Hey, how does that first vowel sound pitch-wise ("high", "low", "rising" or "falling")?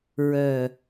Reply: low